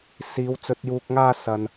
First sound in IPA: s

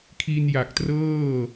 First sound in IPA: kʰ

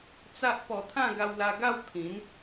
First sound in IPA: t͡s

